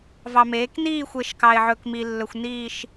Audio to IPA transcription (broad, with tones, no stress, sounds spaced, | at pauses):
v ɑ˧ m eː˨˥ k n iː˥˧ xʷ e˧ ʃ k ɑ˧ ɪ̯ ʕ ɵ˧ k m i˧ lː ɵ˧ xʷ n iː˥˧ ʃ